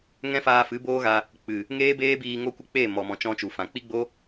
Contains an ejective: no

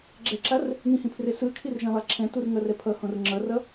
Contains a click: yes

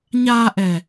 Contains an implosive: no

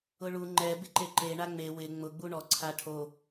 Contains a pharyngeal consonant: no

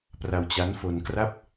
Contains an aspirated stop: no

